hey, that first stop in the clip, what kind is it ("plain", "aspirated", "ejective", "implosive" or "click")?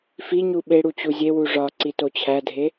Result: implosive